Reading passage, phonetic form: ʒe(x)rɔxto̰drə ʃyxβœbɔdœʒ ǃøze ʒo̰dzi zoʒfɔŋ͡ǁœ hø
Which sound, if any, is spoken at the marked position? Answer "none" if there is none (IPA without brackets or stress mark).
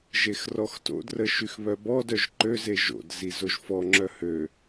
x